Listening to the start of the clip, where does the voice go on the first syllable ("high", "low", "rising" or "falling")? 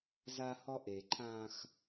high